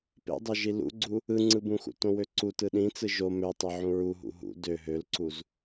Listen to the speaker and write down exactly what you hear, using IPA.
p ḛ dˤ ø ʒ i l ṵ ɡ͡ǀ u | ɯ ŋ͡ǀ ɯ b ũ x ṵ t õ w ø ǀ u t ɯ ɗ ĩ t͡s ɯ ʒ o m ø tˤ e ʕ ũ ɹ u ɦ ṵ ɦ ṵ d ø ɦ ø l ǀ u z

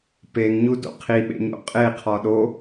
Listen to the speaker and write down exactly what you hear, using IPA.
p e ŋ ɲ u d o̰ qʰ i ɓ ḛ ɲ o̰ qʼ e qʰ ɒ ɗ o

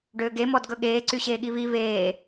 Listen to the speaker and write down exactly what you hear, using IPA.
ɖ øː ɡ e m ɔ d ɡ ɵ ɠ eː ǀ y ɕ eː ɠ i β i β eː

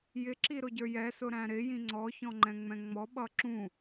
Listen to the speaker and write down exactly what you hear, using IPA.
j ɪ ǁ i ɾ ʊ ɟ ə˞ j ɛ s ʊ ɾ æ̃ ɾ ɪ j ĩ ŋ͡ǀ ɔ ç ɔ̃ ŋ͡ǃ ɛ̃ ŋ͡m ɛ̃ ŋ͡m ɔ ɓ ʌ ǁ ũ

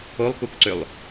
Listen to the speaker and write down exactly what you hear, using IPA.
o lˠ k u k ǀ ʏ lˠ

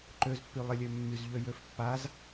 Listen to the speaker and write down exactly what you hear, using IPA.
ǃ ø z pː y lˠ ɪ lʲ ø mː y z ʎ ø j ø f pː a z

